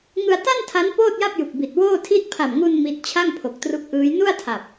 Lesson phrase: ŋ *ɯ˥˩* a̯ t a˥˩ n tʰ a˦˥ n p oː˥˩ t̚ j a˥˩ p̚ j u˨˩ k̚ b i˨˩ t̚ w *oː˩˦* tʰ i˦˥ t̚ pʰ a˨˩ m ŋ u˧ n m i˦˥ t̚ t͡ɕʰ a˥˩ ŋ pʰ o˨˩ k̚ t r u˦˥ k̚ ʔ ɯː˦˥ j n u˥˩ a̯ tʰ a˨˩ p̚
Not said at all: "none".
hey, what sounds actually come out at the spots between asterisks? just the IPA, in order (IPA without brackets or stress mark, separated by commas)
ɯ˧, oː˥˩